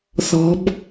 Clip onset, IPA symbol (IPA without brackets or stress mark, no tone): θ